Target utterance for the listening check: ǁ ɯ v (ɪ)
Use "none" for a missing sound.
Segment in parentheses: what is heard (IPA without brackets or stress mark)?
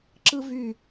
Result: y